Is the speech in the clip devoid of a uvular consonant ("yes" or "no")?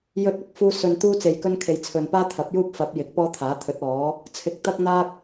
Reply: yes